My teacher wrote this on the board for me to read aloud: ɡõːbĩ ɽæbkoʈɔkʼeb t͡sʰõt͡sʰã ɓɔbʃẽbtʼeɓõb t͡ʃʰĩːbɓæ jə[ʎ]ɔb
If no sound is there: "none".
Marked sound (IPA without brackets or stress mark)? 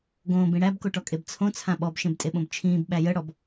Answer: ɽ